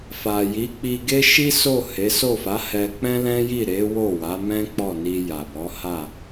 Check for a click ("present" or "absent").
absent